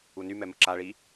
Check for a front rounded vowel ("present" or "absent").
present